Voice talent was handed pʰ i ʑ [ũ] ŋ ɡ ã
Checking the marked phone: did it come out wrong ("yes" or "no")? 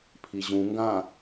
no